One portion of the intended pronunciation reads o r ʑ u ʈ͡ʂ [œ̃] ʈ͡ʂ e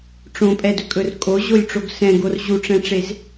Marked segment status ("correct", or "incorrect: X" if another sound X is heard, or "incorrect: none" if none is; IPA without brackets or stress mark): incorrect: ɛ̃